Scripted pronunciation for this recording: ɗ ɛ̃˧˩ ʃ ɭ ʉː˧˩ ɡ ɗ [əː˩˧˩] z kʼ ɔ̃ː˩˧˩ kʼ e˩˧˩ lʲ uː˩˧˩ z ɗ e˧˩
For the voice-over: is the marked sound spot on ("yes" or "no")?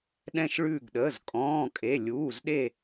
yes